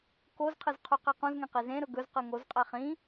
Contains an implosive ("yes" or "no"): no